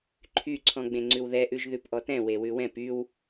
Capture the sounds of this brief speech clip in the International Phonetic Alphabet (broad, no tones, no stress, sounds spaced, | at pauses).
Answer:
ǃʰ y ǀʰ ɔ̃ ɡ͡b ẽ ŋ͡ǀ ʉ w ð ɛ ʔ ʉ ʒ ð ʉ p ʔ ɔ t ɛ̃ w e w ʉ w ɛ̃ p y w